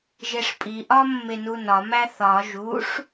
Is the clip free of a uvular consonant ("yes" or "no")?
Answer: yes